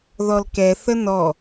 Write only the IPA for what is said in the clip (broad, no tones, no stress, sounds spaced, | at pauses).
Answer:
ð ɔ l k ɛ θ ə n ɔ